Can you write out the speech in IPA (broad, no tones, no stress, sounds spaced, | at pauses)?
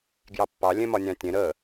ɡ j ɑ pː ɑ lʲ ẽ m ɒ nʲ ɑ̃ tʲ ẽ ɾ ə